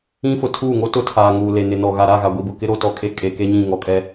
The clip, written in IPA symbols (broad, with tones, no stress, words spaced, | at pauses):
ĩ˦fʊ˨ tʰuː˦˨ŋo˦ tʊ˦ tʰaː˨ ŋuː˨le˨nɪ˨nɔ˨ ɣa˨ɾa˦˨ɣa˨ ɡʷi˨bʊ˨kɪ˦ɾo˦˨ tɔ˨kʼe˦ kʼe˨ke˦ɲĩ˦˨ ŋɔ˨kʼɛ˦